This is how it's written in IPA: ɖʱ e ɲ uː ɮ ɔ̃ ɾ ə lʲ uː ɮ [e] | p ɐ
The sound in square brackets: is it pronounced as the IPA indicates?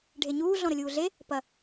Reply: yes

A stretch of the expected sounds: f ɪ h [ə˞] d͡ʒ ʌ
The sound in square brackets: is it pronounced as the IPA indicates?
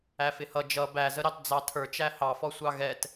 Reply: no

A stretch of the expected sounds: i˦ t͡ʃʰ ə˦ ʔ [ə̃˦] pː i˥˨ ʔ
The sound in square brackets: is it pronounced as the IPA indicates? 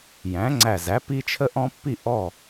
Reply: no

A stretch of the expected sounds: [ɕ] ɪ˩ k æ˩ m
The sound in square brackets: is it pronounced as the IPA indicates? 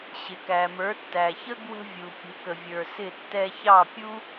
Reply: yes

